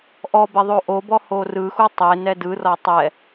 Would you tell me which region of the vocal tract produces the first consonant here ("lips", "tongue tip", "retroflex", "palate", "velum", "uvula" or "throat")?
throat